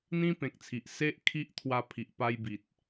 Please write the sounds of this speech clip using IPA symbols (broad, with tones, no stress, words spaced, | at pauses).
n̪ĩ˦ pẽ˨k̚t͡sʰi˨ʔ se˦ʔkʰi˦ʔ t̪ʰwa˧pʰi˨ʔpa˧jbi˨t̚